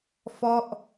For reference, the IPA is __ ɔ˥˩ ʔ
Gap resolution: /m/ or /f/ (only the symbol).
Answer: f